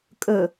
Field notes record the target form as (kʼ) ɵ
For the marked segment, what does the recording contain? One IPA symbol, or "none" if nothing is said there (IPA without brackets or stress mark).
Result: kʼ